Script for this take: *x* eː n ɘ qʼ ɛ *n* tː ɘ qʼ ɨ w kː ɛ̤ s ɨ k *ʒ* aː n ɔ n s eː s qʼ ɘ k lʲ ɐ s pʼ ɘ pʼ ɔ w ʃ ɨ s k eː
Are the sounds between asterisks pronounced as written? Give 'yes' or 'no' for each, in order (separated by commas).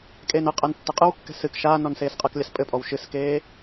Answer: no, yes, no